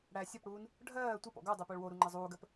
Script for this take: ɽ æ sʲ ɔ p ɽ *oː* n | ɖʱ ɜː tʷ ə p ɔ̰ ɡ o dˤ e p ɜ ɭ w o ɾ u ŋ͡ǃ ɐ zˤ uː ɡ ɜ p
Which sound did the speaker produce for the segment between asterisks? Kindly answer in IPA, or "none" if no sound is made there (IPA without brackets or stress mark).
uː